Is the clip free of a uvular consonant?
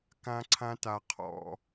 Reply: no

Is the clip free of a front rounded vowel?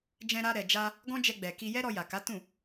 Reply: yes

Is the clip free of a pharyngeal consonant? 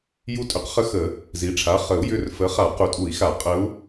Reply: yes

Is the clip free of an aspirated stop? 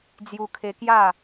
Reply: no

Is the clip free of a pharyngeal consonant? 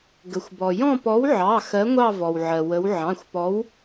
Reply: no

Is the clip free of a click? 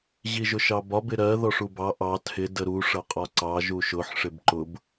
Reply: no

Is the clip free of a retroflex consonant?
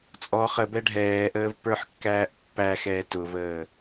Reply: no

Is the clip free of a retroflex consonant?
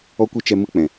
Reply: yes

